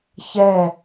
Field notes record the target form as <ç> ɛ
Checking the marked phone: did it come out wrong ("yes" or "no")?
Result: no